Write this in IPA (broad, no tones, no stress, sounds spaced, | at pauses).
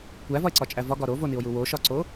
kʷ æ v ɒ e̯ ǀ ɒ t͡ʃʼ æ v ɒ ɡ ɒ ɾ o v o n i o̯ j u w o ʃ ɒ ǀ o